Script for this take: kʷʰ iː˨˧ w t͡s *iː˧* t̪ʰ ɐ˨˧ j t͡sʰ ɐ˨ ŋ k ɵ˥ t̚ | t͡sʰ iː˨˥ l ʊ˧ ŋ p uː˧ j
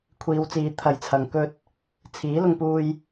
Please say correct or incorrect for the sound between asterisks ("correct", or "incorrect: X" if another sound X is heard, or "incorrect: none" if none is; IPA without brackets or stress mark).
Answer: incorrect: iː˨˧